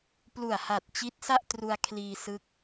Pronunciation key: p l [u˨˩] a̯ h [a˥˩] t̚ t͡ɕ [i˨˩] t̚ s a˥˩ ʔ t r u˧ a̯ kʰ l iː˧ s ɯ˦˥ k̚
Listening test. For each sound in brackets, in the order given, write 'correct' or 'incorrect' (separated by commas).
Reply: correct, incorrect, incorrect